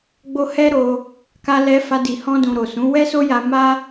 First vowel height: mid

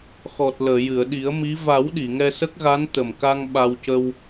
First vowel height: mid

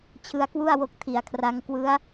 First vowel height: high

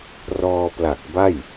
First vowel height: mid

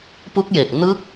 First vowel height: high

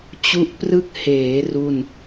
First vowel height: high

